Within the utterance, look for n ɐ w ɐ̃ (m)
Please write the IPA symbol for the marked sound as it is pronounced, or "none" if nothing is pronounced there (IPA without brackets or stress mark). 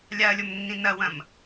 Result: m